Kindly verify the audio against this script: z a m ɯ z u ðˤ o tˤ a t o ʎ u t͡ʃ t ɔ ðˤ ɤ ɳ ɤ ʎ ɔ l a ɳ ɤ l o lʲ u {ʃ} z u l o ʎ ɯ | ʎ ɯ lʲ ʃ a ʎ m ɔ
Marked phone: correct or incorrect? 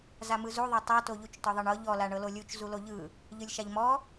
incorrect